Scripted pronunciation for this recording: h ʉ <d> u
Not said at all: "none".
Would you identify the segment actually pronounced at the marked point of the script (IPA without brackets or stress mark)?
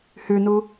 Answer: n